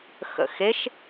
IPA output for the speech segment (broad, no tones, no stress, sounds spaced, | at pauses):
x ə̰ x e ʃ